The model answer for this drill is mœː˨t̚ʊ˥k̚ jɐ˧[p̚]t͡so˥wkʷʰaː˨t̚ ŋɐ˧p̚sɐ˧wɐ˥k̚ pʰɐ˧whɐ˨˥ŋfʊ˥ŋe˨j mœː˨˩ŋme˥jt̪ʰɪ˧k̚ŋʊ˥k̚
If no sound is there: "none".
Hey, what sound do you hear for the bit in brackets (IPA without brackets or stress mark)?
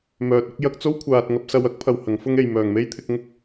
k̚